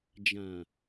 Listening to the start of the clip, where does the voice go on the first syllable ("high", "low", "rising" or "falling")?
low